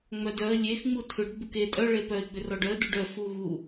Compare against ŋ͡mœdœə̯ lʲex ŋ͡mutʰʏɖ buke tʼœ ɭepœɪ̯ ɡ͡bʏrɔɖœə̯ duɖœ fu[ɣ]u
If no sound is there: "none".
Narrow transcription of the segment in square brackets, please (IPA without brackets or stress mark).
ɣ